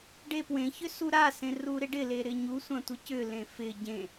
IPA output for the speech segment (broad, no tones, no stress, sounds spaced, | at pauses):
ɖ e p w ẽ ç ʏ s u ɾ a s ẽ r u ɾ ɪ ɖ ɪ l e ɾ ɪ ɲ u sʷ ã tʷ ɪ c ʏ l ẽ f ɪ ɟ ẽ